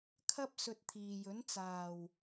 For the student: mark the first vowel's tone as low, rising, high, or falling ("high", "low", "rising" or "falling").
high